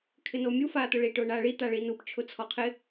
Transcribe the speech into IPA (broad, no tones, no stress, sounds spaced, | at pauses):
kʰ ɪ n o mʲ u f aː t̪ ʊ ɭ i ʈ ʊː ɳ aː ɭ i t̪ a ɭ i n u p t͡ʃʰ ʊ t͡sʰ ɔ qʰ ɪ